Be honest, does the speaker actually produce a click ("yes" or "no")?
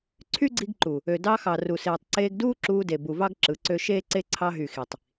yes